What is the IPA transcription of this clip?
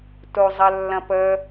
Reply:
t o zˤ ə lː ɐ̃ p ə

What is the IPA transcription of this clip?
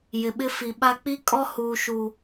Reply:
j ɪ˨ ɓ ɪ˦ f i˨ ɓ a˦ k͡p i˦ kʼ ɔ˦ h uː˨ ʃ u˨

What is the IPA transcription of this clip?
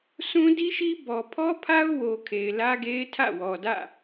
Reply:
sʰ ũ˦ d i˦ ʃ i˦ b ɔ˨ pʰ ɔ˦ pʰ a˦ ʊ̯ w o˨ kʰ e˨ ɪ̯ l ä˦ ɡ e˦ ɪ̯ tʰ ä̰˦˨ w ɔ˨ d ä̰˦˨

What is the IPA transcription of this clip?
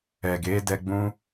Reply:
ɛ˨ ɡ e˨˦ d ɛ˧ ɡ͡b ũ˦

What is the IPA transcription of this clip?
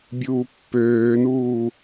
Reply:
bʲ uː pː øː n uː

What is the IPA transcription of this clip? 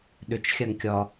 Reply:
ɗ ʏ t͡ʃ xʲ a ŋ kʲ ɒ

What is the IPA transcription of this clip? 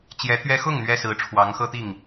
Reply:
t͡ɕ j ɛ˧˥ t̪ ɥ ɛ˥ x ʊ˥˩ ŋ n̪ ɥ ɛ˥ s ɹ̩˧˥ ʈ͡ʂʰ w ɑ˧˥ ŋ x ɤ˥ t̪ i˥˩ ŋ

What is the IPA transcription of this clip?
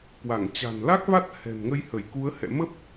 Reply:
k w a˧˩ ŋ t͡ɕ a̤˨˩ n l a˦˥ k̚ v a˦˥ t̚ h ɛ̤˨˩ n ŋ ə˧ j h ə˧˩ j k u˨˦ ə̯ h ɛ̰˧˨ m ə˦˥ p̚

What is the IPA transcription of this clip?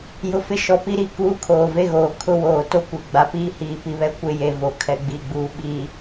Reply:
j ʊ˨ f ɪ˦ ʃ ɔ˨ p i˦ ɾ i˦ k uː˦ kʰ oː˨ v e˦ ɣ oː˨ kʰ ʊ˦˨ w oː˨ t o˦ kʷ e˨ ɡ͡b a˨ p iː˦ h iː˨ p i˨ β ɛ˦ kʷ ɪ˦˨ j e˨ v o˨ kʰ ɛ˨ ɡ͡b i˨ ɡ͡b uː˨ ɓ i˨

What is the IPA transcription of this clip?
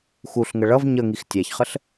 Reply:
x u ɬ ŋ ə ɭ ʌ v ɲ ə ŋ i x tʲ æ ç χ ə ɬ

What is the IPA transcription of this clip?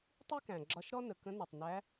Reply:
tˤ i˥ k æ̃˩ ɡ͡ǁ ɒ˧ ʃ ɾ ɔ˥ n ə˩ k ə̃˧˥ n ɒ˩ tˤ n æ˧˥

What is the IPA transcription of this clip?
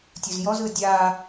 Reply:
tʲ u z j ɔ z ɯ dʲ a

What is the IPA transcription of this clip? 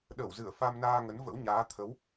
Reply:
ɗ ə˧˩ w z ɨ˧˩ ə̯ f a˧ m n aː˧ ŋ ə˨˦ n v ə̰˧˥ w ɲ aː˨˦ t̪ʰ ə˨˦ w

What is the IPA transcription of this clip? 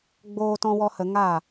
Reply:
ɡ͡b oː˧ t ɔ̃˧ w ɔ˧ h ə˧ ŋ a˦˨

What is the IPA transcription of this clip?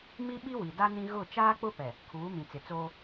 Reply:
m i˦ ɓ i˦ w i˨ d a˦ n ĩ˦ ɣ ʊ˦˨ t͡ʃ aː˦ k͡p ʊ˦ p ɛ˨ | kʰ uː˨˦ m ĩ˨ t͡s ɪ˨ t͡s oː˦

